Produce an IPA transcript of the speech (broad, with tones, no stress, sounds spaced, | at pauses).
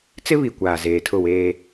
t͡s ɪ˦ β i˨ kʷ aː˨ z eː˨ tʰ ʊ˦˨ w eː˦